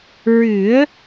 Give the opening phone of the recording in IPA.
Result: ɹ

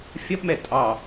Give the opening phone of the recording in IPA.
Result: fʲ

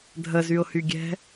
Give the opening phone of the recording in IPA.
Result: dʱ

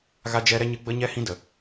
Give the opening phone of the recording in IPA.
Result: ɣ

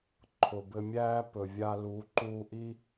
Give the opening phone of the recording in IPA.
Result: ǃʰ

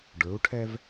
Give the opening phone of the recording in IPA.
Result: ɖ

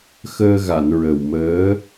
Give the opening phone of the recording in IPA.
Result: x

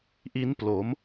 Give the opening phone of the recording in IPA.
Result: ʔ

